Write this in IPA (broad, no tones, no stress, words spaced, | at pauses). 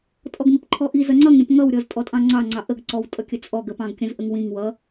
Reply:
tʼɔɡmɪpǃʰɔʔi zʌŋ͡ǀʌŋɾʲə̃p ŋʌwɾʲɔz tʼɔtʼɑ̃ŋ͡ǀɑŋ͡ǀɑ ʔəɡǀɔwtʼʌkʲə t͡sʼɔɡəpɑ̃ɡkʲə̃z ʔəŋwĩŋ wʌ